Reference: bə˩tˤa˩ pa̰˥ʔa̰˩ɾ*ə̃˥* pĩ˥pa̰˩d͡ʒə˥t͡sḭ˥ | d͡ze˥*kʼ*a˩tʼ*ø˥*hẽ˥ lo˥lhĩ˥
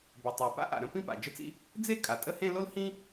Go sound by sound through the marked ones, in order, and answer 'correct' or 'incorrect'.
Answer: correct, correct, incorrect: ə˥

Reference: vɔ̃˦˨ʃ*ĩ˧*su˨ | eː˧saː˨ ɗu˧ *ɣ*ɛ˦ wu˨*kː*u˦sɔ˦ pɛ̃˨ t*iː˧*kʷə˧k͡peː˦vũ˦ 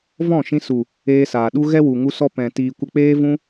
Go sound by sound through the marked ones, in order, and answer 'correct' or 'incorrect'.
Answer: correct, correct, incorrect: ŋ, incorrect: iː˨

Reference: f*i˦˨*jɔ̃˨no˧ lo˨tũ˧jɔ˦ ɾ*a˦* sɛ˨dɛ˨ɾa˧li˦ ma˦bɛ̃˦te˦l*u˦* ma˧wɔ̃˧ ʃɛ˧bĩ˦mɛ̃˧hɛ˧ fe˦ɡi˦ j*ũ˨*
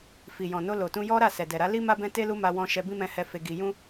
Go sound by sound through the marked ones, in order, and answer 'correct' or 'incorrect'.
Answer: incorrect: i˨, incorrect: a˦˨, correct, incorrect: ũ˦

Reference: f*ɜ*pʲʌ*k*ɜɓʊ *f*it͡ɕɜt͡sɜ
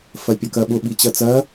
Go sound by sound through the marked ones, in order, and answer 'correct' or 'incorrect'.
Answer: correct, correct, incorrect: ɓ

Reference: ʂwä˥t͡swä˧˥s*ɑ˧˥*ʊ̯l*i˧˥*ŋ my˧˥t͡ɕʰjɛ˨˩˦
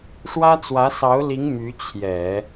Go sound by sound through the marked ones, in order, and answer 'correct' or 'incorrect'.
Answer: correct, correct

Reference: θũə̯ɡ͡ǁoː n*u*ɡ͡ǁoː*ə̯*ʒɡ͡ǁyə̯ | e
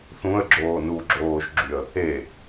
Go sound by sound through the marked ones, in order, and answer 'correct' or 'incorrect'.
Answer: correct, incorrect: none

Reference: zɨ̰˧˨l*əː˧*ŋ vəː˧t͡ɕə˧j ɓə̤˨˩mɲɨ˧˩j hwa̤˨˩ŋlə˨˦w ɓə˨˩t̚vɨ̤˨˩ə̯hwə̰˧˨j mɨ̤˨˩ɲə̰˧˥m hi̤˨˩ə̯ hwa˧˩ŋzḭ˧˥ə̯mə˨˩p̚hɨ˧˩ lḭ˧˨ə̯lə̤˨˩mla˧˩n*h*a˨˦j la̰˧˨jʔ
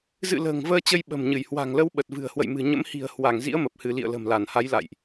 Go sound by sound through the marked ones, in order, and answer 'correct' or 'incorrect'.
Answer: incorrect: ə̤ː˨˩, correct

